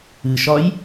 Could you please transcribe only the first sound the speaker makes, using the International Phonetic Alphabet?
ɨ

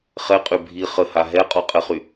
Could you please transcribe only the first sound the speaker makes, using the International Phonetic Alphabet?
χ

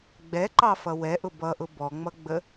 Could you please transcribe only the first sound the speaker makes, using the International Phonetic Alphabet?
ɡ͡b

